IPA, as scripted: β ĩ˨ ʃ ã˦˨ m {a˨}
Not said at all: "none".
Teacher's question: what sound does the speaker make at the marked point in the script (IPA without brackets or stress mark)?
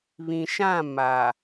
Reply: a˨